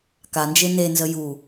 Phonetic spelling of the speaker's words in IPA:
k a n d͡ʒ e n e n z ə j u

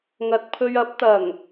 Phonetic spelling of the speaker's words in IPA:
ŋ ɐ˨ t̚ pʰ ɵ˧ ɥ ɐ˨˥ p̚ t̪ ɐ˨˩ ŋ

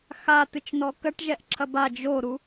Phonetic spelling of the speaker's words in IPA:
x a t ɨ t͡ʃ n ɔ k ɐ ʈ ʒ ɛ ʔ ǁʰ ɐ b a d͡ʒ o ɾ u

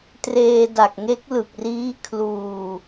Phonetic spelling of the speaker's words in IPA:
t r eː˧ d a˨˩ k̚ ŋ e˦˥ k̚ l ɯ˨˩ k̚ r iː˦˥ kʰ l uː˧

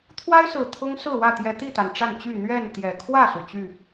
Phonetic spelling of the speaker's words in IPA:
t̪ʰ w a˦ ɪ̯ s ɹ̩˨˩ t̪ʰ ʊ˦ ŋ s ɹ̩˥˨ w ä˥˨ t̪ j ɛ˨˦ t̪ i˥˨ t̪ a˩ n ʈ͡ʂ a˥˨ n t͡ɕ y˥˨ n̪ ɥ ɛ˥˨ n t̪ j ɛ˨˩ kʰ w ä˥˨ s u˩ t͡ɕ y˥˨

